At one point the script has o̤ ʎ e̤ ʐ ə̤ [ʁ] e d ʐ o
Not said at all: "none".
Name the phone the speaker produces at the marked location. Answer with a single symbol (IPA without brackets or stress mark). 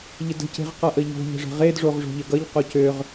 ʁ